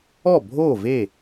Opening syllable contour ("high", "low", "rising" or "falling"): falling